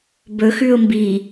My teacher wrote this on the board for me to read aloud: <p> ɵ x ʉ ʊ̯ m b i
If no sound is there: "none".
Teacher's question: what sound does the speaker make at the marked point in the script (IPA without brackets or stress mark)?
b